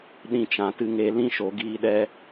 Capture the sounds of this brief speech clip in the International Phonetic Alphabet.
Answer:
ɗ ĩ˧ t͡ʃ ã˨ t ɨ˧ ŋ e˧ l ĩ˦ ʃ o˨ ɡ iː˧ ɗ ɛ˧

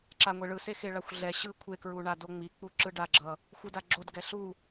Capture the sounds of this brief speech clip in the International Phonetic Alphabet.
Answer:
ǁ a ŋʷ e ɭ ɯ s e x e ɭ a xʷ ɮ ɛ ɕ ɯ kʷʰ e k ɹ u ɳ a d o ŋ͡m i k͡p u ǁ ɯ ɖ a ɡ͡ǁ ʌ | xʷ ɯ d a ɡ͡ǁ o d ɡ ɛ ɬ u

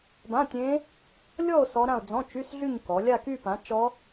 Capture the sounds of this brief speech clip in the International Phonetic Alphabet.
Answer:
b ã˧˥˧ tʲ ẽ˦˥ | lʲ ɔ˥˧ o̯ s ɔ˦˥ ɾ ã˥˧ o̯ d͡z ɔ̃˧˥˧ t͡ʃ y˧˥˧ s ɮ y˥˧ ɲ k ɔ˩˧ lʲ a˥˧ k y˥˧ p ã˩˥ t͡ʃ ɔ˦˥

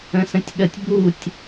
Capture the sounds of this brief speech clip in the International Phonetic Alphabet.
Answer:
ə̃ s ə̃ tʲ ɠ ə tʲ b u tʲ

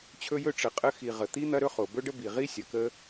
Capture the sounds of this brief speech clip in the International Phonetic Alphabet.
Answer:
t͡ɕʰ ɵ˥ j ɵ˥ ʈ͡ʂ ə˨ qʼ ə˦ x i˨ ʁ ə˩ t̪ i˥ n̪ ɐ˦ ɾ ɵ˥ χ o˩ b ɵ˥ ɖ ə˥ b i˨ ʁ i˥ sʲ ɐ˨ k ə˦

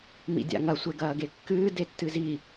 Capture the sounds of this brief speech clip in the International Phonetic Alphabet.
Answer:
m ḭ dʲ a̰ ŋ ɐ sʷ e ɡ ɐː ɡ e kː ɨː d e tː ɨ z i

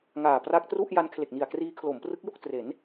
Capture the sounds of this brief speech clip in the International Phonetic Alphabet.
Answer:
ŋ aː˨˩ p r a˦˥ k̚ t r u˥˩ ʔ j a˦˥ n kʰ l e˨˩ k̚ n i˨˩ a̯ k r iː˦˥ kʰ l o˩˦ m p r ɯ˦˥ k̚ j o˥˩ k̚ t r e˩˦ n

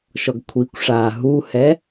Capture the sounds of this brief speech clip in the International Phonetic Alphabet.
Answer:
ʃ ɔ ɡ kʷʰ i kʷ ʂ aː ɦ u h ɛ

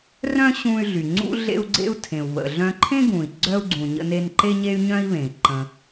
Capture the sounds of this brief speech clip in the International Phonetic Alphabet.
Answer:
r œ̃˥ ɕ ũ˧ y̯ ɮ y˩ ŋ͡ǀ ṵ˥ ɮ ḛ˧ u̯ ɡ͡ǀ ḛ˧ u̯ tʰ ẽ˩ u̯ β ə̰˩ ɮ œ̃˧ ǃʰ ẽ˥ ɡ ũ˩ i̯ ɡ͡ǀ œ˧ u̯ ɡ͡ǀ ũ˩ ɲ ə̰˧ n e˧ n ǃ e˥ ɲ e˥ y̯ ɲ œ̃˥ i̯ β ẽ˩ i̯ ǃ ə̃˩

